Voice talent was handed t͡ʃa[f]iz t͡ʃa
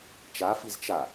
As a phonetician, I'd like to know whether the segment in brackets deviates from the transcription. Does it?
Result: no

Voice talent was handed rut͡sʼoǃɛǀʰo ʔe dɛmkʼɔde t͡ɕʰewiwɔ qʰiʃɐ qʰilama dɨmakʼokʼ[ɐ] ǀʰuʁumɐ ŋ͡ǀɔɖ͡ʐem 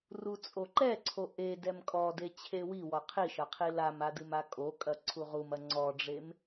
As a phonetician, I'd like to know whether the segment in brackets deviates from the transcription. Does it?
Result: no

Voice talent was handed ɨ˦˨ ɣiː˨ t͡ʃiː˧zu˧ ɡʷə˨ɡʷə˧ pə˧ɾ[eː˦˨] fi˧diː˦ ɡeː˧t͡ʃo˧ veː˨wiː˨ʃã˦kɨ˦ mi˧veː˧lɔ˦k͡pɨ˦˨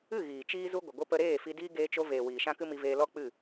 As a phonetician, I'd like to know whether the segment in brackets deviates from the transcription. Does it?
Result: no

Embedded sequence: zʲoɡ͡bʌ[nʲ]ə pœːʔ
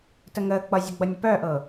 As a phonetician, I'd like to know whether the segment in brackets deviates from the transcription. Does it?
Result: no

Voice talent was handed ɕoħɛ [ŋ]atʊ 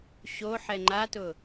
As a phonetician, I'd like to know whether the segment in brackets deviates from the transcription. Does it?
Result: yes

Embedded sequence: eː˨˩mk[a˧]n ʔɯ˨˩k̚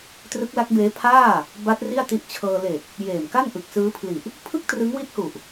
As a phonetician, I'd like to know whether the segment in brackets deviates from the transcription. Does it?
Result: yes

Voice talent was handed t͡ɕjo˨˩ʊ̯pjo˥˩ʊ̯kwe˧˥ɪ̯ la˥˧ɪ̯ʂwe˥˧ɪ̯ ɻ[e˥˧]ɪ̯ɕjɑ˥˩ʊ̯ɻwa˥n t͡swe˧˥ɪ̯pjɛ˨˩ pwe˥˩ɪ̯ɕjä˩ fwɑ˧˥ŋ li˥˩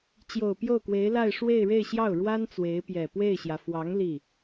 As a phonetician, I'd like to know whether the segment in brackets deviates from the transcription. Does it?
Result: no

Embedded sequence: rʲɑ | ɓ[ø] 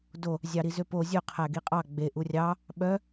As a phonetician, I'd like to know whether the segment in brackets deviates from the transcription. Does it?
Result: yes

